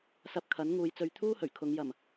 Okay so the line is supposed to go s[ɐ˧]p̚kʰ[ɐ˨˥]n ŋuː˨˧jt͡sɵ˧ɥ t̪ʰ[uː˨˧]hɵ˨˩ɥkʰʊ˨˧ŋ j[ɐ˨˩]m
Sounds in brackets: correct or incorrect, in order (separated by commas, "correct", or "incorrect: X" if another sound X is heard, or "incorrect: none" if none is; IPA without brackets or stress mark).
correct, correct, incorrect: uː˥, correct